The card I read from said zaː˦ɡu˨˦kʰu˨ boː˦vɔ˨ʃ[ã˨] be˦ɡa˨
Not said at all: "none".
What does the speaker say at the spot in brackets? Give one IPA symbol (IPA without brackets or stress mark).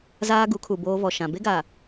ã˨